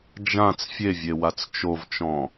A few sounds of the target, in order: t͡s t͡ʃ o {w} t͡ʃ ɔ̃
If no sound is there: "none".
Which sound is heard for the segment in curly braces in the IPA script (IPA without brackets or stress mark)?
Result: v